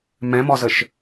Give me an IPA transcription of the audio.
m ɛ̃ m ɔ z ə ʃ

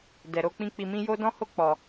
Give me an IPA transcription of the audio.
d ɛ˨ ɾ o˧ k͡p ĩ˧ k͡p i˧ m ĩ˦ j o˦ d ɔ̃˦ h o˦ k͡p ɔ˧

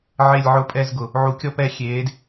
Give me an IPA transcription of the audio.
ʕ e˦˨ lʲ ʕ ʊ˦˨ pʼ ɛ˦˨ z ɡ ʊ˩ | ʕ u˨˩˦ kʲ ɔ˦˨ p ɛ˦˨ xʲ eː˨˦ d

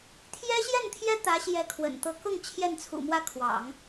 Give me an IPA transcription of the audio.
t̪ʰ j ɛ˥ ɕ j ɛ˥˩ n t̪ʰ j ɛ˥ t̪ ä˧˥ ɕ j ɛ˧˥ kʰ w ə̰˨˩ n t̪ ɤ˥ k ʊ˥˧ ŋ t͡ɕʰ j ɛ˥˩ n t͡sʰ ṵ˨˩ m w ä˥ kʰ w ɑ̰˨˩˦ ŋ

